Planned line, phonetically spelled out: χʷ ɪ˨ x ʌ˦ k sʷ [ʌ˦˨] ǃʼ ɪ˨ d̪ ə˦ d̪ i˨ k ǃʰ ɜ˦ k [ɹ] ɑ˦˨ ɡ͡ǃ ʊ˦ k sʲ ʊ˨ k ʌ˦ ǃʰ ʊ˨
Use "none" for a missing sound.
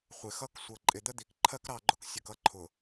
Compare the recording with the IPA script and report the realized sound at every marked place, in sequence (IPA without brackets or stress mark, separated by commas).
ʌ˨, ɾ